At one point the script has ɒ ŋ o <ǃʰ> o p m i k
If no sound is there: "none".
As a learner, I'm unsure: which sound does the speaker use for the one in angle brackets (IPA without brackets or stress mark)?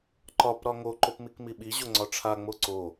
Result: ǃ